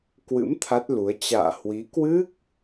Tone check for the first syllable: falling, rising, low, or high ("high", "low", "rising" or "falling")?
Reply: rising